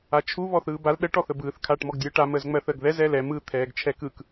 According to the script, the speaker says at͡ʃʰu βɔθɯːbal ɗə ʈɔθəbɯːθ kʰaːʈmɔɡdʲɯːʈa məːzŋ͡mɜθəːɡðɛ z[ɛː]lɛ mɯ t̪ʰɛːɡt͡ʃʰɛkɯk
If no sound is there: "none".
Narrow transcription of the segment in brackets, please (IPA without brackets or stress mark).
ɛː